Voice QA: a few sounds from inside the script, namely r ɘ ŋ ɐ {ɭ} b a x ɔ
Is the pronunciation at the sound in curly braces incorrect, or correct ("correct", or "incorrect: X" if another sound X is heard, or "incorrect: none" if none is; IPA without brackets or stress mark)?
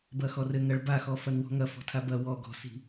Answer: correct